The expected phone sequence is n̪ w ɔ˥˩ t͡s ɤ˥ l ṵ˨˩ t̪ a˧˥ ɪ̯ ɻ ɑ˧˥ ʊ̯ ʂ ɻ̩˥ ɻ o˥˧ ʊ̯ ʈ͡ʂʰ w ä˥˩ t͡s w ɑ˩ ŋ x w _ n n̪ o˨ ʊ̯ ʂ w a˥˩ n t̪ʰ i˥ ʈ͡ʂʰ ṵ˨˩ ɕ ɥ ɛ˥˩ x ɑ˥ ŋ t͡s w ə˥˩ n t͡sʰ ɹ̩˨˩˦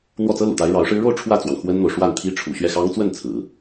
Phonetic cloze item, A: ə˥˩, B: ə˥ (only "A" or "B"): B